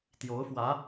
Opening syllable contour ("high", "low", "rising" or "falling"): rising